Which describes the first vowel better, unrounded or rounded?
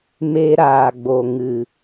unrounded